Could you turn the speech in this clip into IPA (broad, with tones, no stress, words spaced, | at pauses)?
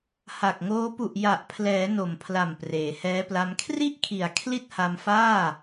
ha˨˩k̚ŋoː˦˥ pu˨˩ʔja˨˩ʔpʰlɛː˩˦ no˨˩mpʰla˨˩m preː˩˦hɛː˦˥pla˦˥m kʰri˥˩ʔkʰi˨˩a̯ kʰli˥˩t̚ha˧mfaː˥˩